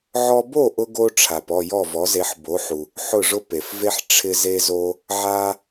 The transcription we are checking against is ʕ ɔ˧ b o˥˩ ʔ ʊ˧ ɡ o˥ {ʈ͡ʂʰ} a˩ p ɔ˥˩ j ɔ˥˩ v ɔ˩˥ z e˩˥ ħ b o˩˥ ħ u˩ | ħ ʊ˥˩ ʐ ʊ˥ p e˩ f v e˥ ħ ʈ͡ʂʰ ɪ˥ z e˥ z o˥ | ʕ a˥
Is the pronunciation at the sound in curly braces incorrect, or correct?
correct